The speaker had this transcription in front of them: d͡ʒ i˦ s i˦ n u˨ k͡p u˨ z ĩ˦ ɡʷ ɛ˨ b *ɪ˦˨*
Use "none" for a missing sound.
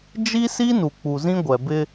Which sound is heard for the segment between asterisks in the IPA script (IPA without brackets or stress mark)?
ɪ˦